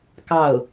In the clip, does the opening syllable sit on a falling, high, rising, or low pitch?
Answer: falling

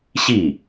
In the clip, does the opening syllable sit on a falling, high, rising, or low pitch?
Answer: falling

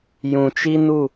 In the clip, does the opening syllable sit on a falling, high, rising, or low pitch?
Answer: low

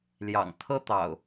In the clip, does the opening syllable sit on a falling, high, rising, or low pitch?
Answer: low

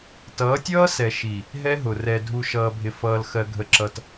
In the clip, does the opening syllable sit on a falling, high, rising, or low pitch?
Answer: rising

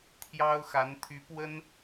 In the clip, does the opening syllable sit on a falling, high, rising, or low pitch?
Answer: high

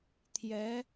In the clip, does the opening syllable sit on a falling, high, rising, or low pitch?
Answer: rising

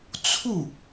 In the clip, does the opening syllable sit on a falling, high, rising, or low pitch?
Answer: falling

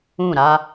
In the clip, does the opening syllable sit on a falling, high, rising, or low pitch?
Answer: falling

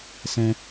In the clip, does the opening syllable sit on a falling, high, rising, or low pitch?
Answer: high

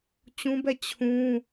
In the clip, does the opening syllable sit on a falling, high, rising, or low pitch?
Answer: high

